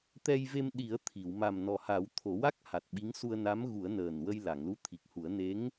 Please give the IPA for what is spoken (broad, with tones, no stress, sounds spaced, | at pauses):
t̪ ɛ˧ j v e˧ m ɗ i˨˩˦ ə̯ t̪ʰ i˨˩˨ w m a˨˩ m n ɔ˨˩ h a˨˩˦ w t̪ʰ o˨˩˦ w a˦˥ k̚ h a˨˩ t̚ ɓ i˧˥ ŋ s u˧ ə̯ n a˧˥ m ɣ u˨˩˦ ə̯ n əː˨˩ n w ə˧ j l a˨˩˨ ŋ l u˧˥ t̪ʰ i˨˩ k̚ h u˨˩˦ ə̯ n e˧˥ ŋ